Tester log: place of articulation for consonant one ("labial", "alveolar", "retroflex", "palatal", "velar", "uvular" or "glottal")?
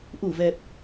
glottal